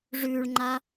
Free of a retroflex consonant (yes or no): no